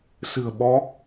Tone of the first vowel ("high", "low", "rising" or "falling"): low